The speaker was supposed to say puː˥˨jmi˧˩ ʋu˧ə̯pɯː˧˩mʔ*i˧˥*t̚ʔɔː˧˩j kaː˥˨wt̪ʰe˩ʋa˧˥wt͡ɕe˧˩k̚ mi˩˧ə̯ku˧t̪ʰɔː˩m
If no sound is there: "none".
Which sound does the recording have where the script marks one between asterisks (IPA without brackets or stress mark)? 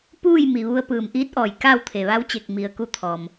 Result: iː˧˥